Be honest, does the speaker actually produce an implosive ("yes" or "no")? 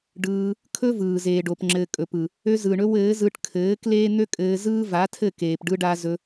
no